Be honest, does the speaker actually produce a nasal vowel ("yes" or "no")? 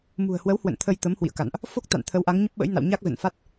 no